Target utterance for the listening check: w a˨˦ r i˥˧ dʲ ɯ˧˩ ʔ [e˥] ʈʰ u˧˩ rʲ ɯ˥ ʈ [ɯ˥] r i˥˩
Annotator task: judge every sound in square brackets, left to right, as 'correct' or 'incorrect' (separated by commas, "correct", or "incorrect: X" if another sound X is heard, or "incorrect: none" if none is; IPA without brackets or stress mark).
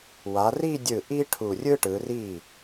incorrect: i˥, incorrect: ɯ˨˦